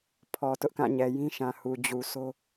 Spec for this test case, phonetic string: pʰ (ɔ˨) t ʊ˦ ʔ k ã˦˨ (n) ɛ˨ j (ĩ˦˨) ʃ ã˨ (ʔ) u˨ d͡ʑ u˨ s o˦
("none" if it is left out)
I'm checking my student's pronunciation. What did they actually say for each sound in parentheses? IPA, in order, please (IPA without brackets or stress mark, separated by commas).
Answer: ɔ˨, ɲ, ĩ˦, h